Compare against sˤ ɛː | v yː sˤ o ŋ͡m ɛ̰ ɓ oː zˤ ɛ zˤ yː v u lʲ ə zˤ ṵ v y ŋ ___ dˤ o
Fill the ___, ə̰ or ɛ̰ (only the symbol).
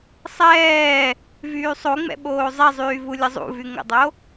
ə̰